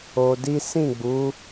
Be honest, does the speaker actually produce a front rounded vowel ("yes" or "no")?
no